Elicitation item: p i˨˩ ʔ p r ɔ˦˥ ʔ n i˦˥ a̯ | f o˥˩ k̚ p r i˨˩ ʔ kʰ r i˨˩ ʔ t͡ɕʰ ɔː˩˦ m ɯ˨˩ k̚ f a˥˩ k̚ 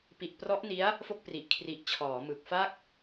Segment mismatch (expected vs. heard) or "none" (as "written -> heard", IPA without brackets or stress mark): none